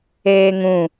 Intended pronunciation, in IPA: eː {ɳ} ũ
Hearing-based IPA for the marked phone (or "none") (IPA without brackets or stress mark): ŋ